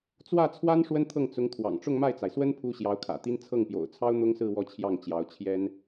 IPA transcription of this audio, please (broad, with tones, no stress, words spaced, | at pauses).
t͡swä˥˩t͡sʰwa˥n ʂwə˥nt̪ʰɤ˥˩ŋ t͡sʊ˧˥ŋt̪ʰwɑ̰˨˩ŋ ʈ͡ʂʊ˥˧ŋma˥˩ɪ̯t͡sa˩ɪ̯swə˥n pʰu˥ ɕjɑ˧˥ʊ̯kʰä̰˨˩t̪i˥n t͡sʰɤ˥˩ŋpjo̰˨˩ʊ̯t͡sʰɑ˥ʊ̯ n̪ʊ˥ŋsɹ̩˥˧ wɔ˥˧t͡ɕʰjɑ˥˩ŋ t͡ɕjɑ˧˥ʊ̯t͡ɕʰjɛ˥n